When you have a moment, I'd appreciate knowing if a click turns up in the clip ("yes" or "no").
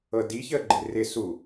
yes